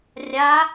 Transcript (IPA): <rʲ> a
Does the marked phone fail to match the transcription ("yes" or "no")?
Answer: no